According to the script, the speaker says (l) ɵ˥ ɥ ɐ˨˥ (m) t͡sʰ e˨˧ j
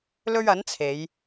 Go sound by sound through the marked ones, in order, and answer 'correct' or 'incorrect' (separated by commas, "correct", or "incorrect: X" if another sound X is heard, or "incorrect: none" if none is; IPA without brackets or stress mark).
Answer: correct, incorrect: n